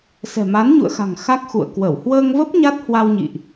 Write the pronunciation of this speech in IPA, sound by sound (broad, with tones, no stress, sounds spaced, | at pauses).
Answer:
s ɛ̤˨˩ m a˨˦ n ɲ ṵ˧˨ ə̯ x a̤˨˩ ŋ x a˦˥ k̚ x ṵ˧˨ ə̯ k w ə˧˩ w h w əː˧ ŋ v ə˦˥ p̚ ɲ a˦˥ t̚ h w a˧ w ɲ ḭ˧˨ ʔ